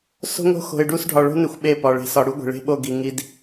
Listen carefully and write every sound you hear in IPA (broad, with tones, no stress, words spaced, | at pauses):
so̤˦ŋo̤˦ xo̤˨ɪ̯ɖu˦˨s ɖʱɒ˨ɭo̤˦ne˨xʷ ɓe˦˨pɒ˨ ɭe̤˨sɒ˨ɽu˦ ɡʷe̤˨ɭe̤˦ɓo˦˨ ɡi˨ŋi˨d